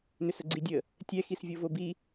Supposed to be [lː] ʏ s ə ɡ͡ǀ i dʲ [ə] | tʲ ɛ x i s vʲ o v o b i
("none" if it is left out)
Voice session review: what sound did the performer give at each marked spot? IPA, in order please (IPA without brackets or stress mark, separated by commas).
n, ə